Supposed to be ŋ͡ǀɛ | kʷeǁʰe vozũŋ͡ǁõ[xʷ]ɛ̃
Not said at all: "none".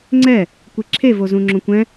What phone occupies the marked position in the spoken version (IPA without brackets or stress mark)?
kʷ